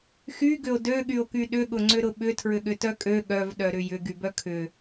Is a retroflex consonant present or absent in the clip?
absent